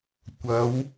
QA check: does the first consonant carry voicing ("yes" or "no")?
no